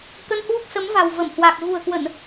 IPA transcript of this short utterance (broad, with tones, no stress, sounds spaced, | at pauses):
k ə˧ n h w u˦˥ k̚ s ə˨˦ m v a̤˨˩ w v ə˧˩ m h w a˨˩ k̚ ɣ ṳ˨˩ ə̯ k w ə˧˩˨ n